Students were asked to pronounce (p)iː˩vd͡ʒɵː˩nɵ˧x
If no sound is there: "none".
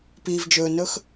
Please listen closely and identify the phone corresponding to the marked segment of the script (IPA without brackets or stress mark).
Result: p